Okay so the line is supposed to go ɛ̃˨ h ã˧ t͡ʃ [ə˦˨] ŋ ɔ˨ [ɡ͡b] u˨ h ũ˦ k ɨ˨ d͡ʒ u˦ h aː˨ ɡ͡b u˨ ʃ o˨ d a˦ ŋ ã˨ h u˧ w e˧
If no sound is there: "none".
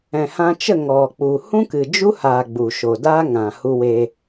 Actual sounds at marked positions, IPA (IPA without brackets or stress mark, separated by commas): ə˦˨, k͡p